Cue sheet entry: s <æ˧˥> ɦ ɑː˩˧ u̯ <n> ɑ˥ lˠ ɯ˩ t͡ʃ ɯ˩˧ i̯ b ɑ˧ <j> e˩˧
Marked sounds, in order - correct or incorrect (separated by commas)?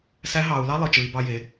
correct, incorrect, correct